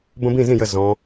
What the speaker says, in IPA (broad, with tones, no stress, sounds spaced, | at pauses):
b ə̃˦ b ĩ˥˩ z ĩ˥˩ j ə˧˩ z ɔ̃˩˧